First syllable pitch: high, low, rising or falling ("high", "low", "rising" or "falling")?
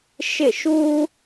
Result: falling